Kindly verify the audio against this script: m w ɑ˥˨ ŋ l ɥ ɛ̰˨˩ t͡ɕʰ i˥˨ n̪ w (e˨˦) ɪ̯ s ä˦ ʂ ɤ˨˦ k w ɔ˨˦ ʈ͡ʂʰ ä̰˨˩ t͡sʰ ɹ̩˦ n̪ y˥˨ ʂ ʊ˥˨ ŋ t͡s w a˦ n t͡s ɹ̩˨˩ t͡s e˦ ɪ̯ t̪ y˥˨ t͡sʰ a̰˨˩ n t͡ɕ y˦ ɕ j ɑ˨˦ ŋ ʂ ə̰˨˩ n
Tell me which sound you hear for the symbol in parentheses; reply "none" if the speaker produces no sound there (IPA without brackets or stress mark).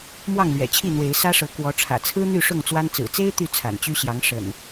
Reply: e˨˦